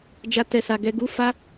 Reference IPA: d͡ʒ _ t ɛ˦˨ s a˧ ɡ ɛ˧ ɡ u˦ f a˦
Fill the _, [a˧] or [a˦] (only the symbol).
a˦